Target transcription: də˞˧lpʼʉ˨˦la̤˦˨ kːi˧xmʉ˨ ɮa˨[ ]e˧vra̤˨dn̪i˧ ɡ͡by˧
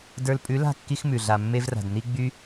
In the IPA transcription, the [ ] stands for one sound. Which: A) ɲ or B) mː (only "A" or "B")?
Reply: B